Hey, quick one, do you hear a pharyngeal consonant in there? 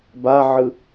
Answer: yes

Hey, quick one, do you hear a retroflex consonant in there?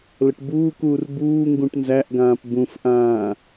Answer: yes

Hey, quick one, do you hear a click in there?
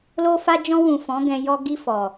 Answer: no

